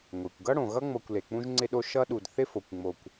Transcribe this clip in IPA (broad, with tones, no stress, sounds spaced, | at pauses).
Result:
ŋʷ e˩ kʷ ɡ ʌ˥ ɽ õ˩ ɣ ʌ˥ ŋ͡m ɤ˨ kʷ l e˩ k͡p ũ˦ ʒ ŋ͡ǀ ɪ˦ ɗ o˦ ʃ ʌ˦ ɗ u˨ d θ ɪ˥ f o˩ kʷ ŋ͡m o˨ kʷ